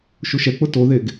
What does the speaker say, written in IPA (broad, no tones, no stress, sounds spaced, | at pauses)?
ʃ u ʃ ɛ k͡p ʊ t o ð e ɡ